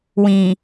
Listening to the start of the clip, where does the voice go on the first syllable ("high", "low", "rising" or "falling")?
low